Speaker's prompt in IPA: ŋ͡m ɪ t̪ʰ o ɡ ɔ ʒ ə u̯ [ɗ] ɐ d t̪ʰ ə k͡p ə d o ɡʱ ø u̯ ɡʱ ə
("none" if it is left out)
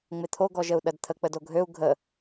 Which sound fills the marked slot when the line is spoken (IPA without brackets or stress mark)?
ɗ